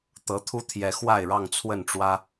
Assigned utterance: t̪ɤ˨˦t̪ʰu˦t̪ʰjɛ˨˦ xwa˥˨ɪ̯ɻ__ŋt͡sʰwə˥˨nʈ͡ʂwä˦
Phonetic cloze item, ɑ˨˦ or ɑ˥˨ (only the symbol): ɑ˥˨